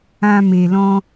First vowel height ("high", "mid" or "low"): low